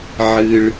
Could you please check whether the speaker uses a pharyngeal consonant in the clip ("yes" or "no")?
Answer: yes